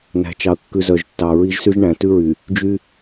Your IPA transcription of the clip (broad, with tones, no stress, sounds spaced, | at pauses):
n æ̤˨ t͡ʃ ɑ˨ ə̯ kː ʉ˨ z œ˨ ʒ tː ɑ˨ ɹ i˦ ʒ s y˦ ʒ ɳ æ̃˨ t ʉ˦ ɹ y˨ | d͡ʒ y˦